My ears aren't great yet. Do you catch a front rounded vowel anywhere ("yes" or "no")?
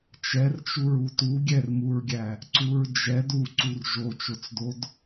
no